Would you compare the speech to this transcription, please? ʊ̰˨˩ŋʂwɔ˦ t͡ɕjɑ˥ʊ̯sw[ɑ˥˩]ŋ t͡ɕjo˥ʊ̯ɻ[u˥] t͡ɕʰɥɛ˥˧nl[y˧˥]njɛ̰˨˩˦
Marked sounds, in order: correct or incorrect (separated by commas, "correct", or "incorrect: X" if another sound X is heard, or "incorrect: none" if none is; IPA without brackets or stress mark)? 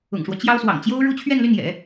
incorrect: ɑ̰˨˩, correct, incorrect: y˥˩